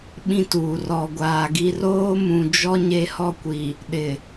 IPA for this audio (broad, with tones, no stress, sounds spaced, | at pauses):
ɓ ĩ˦ t uː˨ r ɔ˨ ɡʷ aː˨ ɡ i˦ r oː˦ m ũ˨ d͡ʒ ɔ˦ ɲ e˦ h ɔ˦ kʷ i˨ | ɗ ɪ˨